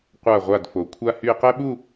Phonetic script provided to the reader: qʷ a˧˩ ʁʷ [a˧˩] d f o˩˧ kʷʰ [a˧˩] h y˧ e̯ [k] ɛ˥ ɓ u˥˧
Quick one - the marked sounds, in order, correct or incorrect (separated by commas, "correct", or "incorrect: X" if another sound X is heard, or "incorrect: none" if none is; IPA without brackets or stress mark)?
correct, incorrect: a˧, incorrect: q